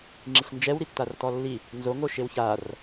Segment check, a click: present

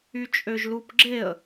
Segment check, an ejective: present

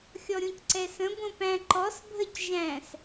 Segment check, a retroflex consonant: absent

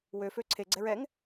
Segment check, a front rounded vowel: present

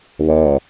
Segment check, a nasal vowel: absent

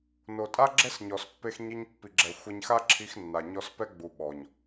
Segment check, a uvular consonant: absent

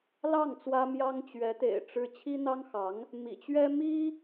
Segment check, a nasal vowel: absent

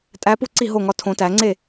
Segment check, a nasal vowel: present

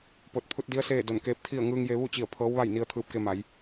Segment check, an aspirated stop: present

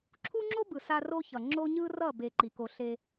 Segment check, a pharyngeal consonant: absent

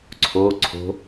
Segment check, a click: present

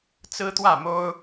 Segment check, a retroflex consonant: absent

